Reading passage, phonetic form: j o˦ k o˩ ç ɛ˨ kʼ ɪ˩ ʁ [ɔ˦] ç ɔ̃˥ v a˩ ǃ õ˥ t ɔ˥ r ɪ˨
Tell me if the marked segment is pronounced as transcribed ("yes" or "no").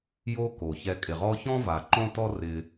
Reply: yes